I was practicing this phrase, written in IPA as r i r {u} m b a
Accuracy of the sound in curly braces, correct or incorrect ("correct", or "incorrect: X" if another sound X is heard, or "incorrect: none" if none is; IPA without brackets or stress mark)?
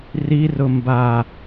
incorrect: ʊ